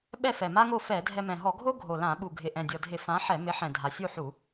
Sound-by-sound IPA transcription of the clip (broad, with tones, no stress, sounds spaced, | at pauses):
ɓ ɛ˥˨ f ɛ˨˩ m a˥ ŋ o˥˨ f ɛ˧˩˧ dʱ ɛ˧ m ɛ̃˨˩ ɦ ɔ˧˩˧ ɡʱ o˥ ɡʱ o˨˩ l ã˧˩˧ ɓ u˨˩ ɡʱ ɪ˨˩ ʔ ɛ̃˨˩ dʲ ɔ˨˩ dʱ ɪ˧˩˧ f ã˨˥ ħ ɛ˧˩˧ m ɪ˨˥ ħ ɛ̃˨˩ dʱ a˨˩ sʲ u˥˨ ħ u˧˩˧